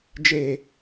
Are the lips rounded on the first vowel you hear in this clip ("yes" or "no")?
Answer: no